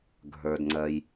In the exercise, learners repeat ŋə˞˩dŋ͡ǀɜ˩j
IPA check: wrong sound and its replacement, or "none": ŋ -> ɡʱ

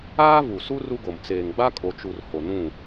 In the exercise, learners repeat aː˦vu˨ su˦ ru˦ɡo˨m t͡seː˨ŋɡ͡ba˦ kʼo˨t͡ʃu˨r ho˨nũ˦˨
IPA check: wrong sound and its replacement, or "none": none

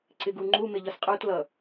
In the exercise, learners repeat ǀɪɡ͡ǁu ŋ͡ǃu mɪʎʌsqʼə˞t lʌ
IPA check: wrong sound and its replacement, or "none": ɡ͡ǁ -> ɡ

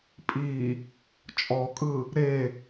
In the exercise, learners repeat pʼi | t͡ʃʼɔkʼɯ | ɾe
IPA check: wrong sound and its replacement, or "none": none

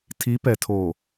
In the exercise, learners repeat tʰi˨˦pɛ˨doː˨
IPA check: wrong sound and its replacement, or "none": d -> tʰ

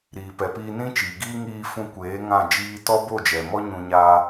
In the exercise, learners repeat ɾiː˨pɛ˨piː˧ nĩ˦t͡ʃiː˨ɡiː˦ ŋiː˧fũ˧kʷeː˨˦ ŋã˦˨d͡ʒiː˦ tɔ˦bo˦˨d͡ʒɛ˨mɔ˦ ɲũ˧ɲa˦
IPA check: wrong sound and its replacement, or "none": none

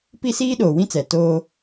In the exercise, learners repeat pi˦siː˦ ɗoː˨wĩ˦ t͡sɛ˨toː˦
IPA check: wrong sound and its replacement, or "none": none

